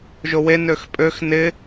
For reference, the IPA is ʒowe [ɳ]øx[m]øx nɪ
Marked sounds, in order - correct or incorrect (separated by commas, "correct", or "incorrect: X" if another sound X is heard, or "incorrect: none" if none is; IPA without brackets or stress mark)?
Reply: incorrect: n, incorrect: pʼ